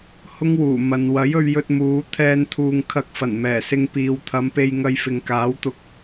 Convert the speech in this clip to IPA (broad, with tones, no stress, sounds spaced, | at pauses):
h ʊ˥ ŋ w uː˨˩ m ɐ˨ n w ɐ˨˥ j ɵ˧ ɥ j ɵ˧ t̚ m uː˨˧ t̪ʰ ɛː˧ n t̪ʰ uː˨ ŋ kʰ ɐ˧ k̚ f ɐ˨˩ n m ɛː˨˩ s ɪ˧ ŋ p iː˨ w t̪ʰ ɐ˨˧ m p e˧ j ŋ ɐ˧ j f ɪ˨ ŋ k aː˨˥ w t̪ ʊ˧ k̚